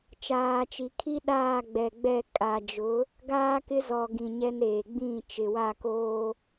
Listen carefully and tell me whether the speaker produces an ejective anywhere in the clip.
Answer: yes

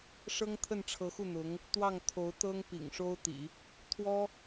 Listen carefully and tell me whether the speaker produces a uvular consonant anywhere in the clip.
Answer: no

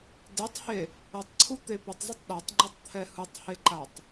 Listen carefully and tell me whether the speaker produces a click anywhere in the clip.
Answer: yes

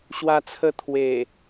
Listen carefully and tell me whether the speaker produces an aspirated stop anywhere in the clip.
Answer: yes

